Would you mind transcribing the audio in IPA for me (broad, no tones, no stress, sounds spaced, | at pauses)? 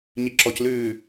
ɲ i ǁ ɔ c l ʉː